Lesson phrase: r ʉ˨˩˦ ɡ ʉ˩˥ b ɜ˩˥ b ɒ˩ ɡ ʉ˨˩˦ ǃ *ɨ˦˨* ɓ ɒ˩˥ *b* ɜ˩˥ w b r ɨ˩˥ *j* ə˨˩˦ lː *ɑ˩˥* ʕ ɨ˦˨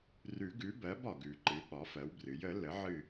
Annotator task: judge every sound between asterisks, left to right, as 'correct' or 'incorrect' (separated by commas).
incorrect, incorrect, correct, incorrect